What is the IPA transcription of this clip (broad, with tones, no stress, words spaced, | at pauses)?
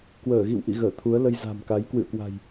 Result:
kwəː˧˩ɣḭ˧˨wʔḭ˧˨ɣəː˧˩ t̪ʰu˨˦ə̯lə˧j za̤˨˩mka˨˦j kwɨ̰˧˨ə̯kwa̤˨˩j